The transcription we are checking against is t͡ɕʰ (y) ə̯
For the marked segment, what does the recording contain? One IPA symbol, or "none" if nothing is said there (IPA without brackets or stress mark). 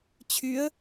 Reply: y